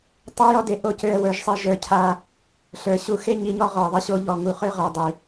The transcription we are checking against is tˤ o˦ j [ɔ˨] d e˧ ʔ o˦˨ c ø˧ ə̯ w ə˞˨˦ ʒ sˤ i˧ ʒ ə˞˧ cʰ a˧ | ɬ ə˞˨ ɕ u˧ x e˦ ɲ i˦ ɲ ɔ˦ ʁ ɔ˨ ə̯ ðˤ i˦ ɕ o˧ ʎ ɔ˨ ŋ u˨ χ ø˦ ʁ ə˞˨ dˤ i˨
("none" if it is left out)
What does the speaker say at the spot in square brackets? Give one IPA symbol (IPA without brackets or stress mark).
ɔ˦